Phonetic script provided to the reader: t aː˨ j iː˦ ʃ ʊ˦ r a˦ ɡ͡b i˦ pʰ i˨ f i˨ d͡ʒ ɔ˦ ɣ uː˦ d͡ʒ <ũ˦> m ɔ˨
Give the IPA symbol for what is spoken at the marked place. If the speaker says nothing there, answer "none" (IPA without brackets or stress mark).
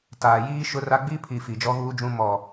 ũ˦